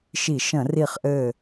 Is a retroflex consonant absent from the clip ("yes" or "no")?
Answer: yes